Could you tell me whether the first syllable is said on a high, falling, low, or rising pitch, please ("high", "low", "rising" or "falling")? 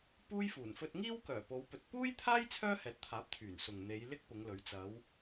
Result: high